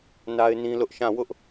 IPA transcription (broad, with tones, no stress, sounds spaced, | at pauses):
n a˦ ɪ̯ n ĩ˦ l ʊ˦ ʔ ʃ ã˦˨ w ʊ˦ ʔ